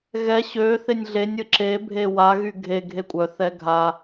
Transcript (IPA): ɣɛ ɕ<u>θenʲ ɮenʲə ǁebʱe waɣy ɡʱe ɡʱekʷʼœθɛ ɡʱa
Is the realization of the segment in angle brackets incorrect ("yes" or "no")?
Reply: yes